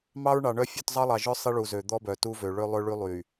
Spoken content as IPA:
m ɑ˦ ɹ ɳ ɑ˨ ɳ œ˦ fʲ ʉ˦˨ t zˤ ɑ˦ lˠ ɑ˨ ʒ œ˦ sˤ i˦ ɭ u˨ z ø˨ d̪ ɔ˦ b œ˨ t u˦ v ø˨ ɭ ø˦ lˠ ø˦ ɭ y˦ lˠ y˨

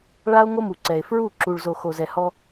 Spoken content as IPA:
ɭ a˦ o̯ ŋ o˦ m u˨ ǀ ɛ˨ e̯ f ɹ u˦˨ ǁ u˨ ɭ z o˨ x o˨ z ɛ˨ h ɔ˦

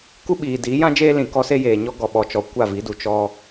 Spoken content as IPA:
k u˦ ɓ iː˨ d iː˨˦ j ã˦ d͡ʒ eː˦ l ĩ˨ k ɔ˦ s e˦ j eː˨ ɲ ɔ˦ ɡ ɔ˨ ɓ ɔ˨ t͡ʃ ɔ˨ kʷ a˦˨ v i˨˦ d u˨ t͡ʃ ɔ˦

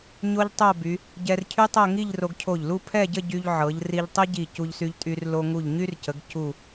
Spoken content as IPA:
ɲ o˥ ʎ tˤ o˥˧ b y˩˧ | ɟ ɛ˧ r cʰ y˥ tˤ ɤ˥˧ ŋ i˥˧ ʎ r o˧ ɡ cʰ o˧˩ ʎ l u˥˧ pʰ ɛ˥˧ ɟ ə˥˧ ɟ y˧ ʎ ʕ ɤ˩˧ ʎ r i˧ ʎ tˤ i˥ ɟ i˧˩ c u˧ ʎ s y˧ ʎ tʼ y˧ r l o˧ ŋ u˧˩ ʎ ɲ y˥ r c ə˩˧ ɡ c u˧˩

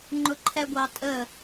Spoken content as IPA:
ŋ͡ǃ ʊ ǃʰ ɛ ɡʷ ɑ tʼ ə

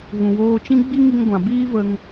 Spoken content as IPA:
ɣ ũ˨ w oː˧ t͡ʃ ĩ˦ ɡ͡b i˦ ŋ i˧ ŋ ɡʷ ã˨ b iː˦ v ə˧ ŋ

